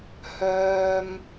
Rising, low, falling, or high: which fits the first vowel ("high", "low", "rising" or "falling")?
low